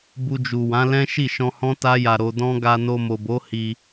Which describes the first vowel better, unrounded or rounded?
rounded